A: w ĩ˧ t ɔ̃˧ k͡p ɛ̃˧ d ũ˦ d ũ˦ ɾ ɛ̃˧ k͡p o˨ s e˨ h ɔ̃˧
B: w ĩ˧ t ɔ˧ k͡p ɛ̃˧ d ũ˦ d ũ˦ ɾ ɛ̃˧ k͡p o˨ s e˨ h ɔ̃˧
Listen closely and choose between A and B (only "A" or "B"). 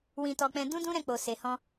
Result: B